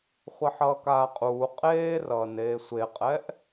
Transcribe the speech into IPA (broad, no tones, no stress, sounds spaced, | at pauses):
χʷ ʌ ħ ʌː k aː qʼ uː qʼ eː r ʌː n eː sʷ e qʼ ɛ ʔ